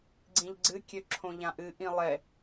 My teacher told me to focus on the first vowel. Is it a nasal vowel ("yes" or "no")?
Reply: yes